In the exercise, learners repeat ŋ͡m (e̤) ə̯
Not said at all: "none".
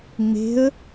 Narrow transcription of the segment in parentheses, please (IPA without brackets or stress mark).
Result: e̤